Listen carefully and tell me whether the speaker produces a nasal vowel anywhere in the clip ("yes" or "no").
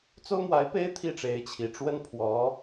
no